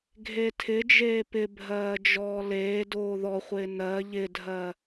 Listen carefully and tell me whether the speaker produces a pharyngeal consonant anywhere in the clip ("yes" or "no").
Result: no